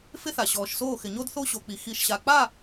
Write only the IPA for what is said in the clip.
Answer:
f ɪ˥ θ a˧ ɕ ɔː˧ ʃ s oː˥˧ x ɪ˧ ɲ o˥ d θ o˥ ɕ o˧ k͡p i˧ x i˧˩ ʃ ɕ a˧ k͡p a˥˧

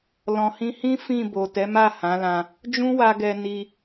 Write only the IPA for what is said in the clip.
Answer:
l ɔ̃˨ h ĩ˧ h ĩ˦ f ĩ˦˨ b o˨ t ɛ˨˦ m a˦˨ h ã˨˦ l ã˧ | d͡ʒ ũ˦ w a˧ ɡ ɛ˧ n i˧

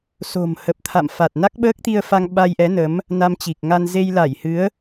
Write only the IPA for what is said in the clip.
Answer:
s o̤˨˩ m h ə˨˩ p̚ t̪ʰ a̰˧˨ m f a˨˩ t̚ n a˦˥ k̚ ɓ əː˦˥ k̚ t̪ i˧ ə̯ f a˧ ŋ ɓ a˧ j ʔ ɛ˨˦ n ə˨˦ m | n a˧ m t͡ɕ i˨˩ k̚ ŋ a˧ n z e˧ j l a˧˩ j h ɨ˨˦ ə̯

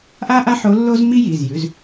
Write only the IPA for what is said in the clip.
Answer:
ʔ a˥ ʔ a˥ ħ o˧˥ lː o˥ z m i˥ j i˩˧˩ z j ʉ˩˧˩ z

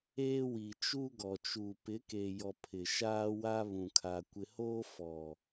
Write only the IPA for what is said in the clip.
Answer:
eː˦ w i˨ t͡ʃ u˦ ɡ ɔ˨ t͡ʃ u˨ p ɪ˨˦ k e˨ j ɔ˨ pʰ ɪ˨ ʃ aː˦ w a˦ β ũ˨ kʰ a˨ kʷ ɪ˨ h oː˦ f ɔ˨

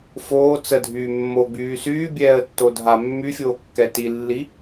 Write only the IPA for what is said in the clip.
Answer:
f oː t͡s ə dʱ yː mː o ɡ͡b yː s yː bʲ ɛː ə̯ tː o dʱ a mː y fʲ oː kː ɛ t i lː i

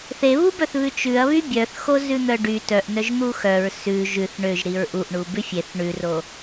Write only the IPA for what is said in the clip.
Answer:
θ e β u b œ θ β ʉ t͡ʃ ʉ ɐ̯ β y bʲ œ θ x o z ʉ n̪ œ ɖ y t œ ʔ n œ ʒ n̪ u x œ ɹ s ʉ ʒ ʉ θ ɳ ø ʒ ɾ i ɹ ʔ u ʔ ɳ u b ʉ fʲ e θ ɳ ʉ r o

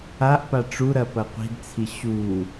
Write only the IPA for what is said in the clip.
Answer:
a ʔ p a ʈ͡ʂ u ɾ ɐ p ɐ qʷ i̤ d t͡sʰ i ɕ u

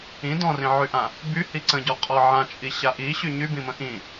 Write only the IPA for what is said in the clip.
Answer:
ĩ d ɔ̃ r ĩ ʕ y ʔ ã | b y h i ǀ ə̃ ɟ ɔ qʼ ɔ ʕ ã t͡ʃʼ i ɕ a ʔ i ɕ y ɲ y b ĩ m ə̃ ʔ ĩ

